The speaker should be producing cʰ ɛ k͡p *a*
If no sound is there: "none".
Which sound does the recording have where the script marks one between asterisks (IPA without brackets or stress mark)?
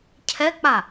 a